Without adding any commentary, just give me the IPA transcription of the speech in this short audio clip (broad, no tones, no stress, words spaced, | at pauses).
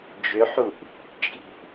d͡ʒʏħuʔ | t͡ʃʼi̤ʔ